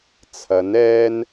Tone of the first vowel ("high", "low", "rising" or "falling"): rising